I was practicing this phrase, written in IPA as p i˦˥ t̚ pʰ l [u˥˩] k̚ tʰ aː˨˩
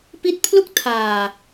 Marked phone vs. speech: correct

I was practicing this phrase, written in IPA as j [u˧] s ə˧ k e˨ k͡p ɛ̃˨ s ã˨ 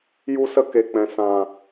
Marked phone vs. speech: correct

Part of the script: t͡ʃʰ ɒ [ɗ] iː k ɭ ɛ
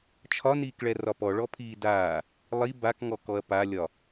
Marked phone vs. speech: incorrect: n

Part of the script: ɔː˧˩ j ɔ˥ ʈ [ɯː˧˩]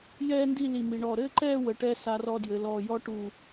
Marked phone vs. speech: incorrect: uː˧˩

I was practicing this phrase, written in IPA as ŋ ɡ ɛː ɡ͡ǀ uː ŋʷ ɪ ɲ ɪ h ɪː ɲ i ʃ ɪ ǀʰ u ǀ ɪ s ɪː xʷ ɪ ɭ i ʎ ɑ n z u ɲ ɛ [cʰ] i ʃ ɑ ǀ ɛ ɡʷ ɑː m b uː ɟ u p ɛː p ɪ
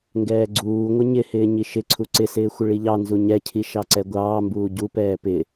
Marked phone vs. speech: correct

